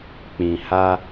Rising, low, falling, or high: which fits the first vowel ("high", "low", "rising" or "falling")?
low